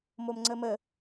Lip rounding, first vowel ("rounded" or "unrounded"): rounded